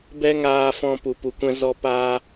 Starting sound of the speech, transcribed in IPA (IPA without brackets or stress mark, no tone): b